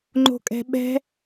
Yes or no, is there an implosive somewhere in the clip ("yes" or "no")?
yes